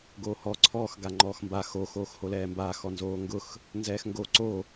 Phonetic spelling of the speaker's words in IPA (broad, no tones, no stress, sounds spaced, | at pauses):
ɡ oː h ɔ ǀʰ ɔː x ɡ a ŋ͡ǃ ɔː x m b a x o x oː x h o l ɛː m b a x ɔ n z oː ŋ ɡ ʊ x | n z ɛː x ŋ ɡ o ǀ o